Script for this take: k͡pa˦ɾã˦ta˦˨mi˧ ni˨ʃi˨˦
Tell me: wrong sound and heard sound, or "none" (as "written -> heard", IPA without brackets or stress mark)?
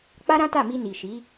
none